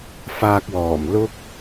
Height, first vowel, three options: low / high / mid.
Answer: low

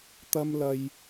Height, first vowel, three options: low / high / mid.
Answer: low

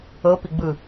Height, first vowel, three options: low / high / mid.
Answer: mid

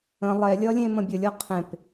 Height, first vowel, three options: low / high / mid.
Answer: mid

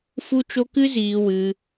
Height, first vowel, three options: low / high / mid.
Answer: high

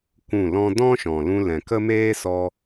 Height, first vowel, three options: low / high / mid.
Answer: high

